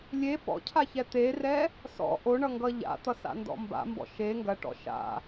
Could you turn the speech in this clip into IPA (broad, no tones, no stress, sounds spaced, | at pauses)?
lʲ e p ɔ̰ cʰ a ç ɛ t̪ e r ɛ | s ɔ̰ ʔ o ɳ ʌ ŋ ɡ ʌ ʎ a̰ t̪ ʌ s a̰ n d ɔ̰ m b a̰ m b ɔ̰ ʃ e ŋ ɡ ɐ ʈ ɔ̰ ʃ a̰